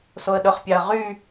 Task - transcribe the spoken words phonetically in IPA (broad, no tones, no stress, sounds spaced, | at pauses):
s o ə̯ ɗ ɵ χ pʲ ɑ ə̯ ʁ y